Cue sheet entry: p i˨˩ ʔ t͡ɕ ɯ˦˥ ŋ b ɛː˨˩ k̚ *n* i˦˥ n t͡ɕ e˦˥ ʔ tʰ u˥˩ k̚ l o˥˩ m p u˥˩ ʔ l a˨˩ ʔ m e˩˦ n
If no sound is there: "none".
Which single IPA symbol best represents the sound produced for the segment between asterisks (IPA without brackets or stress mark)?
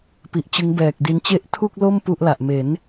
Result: d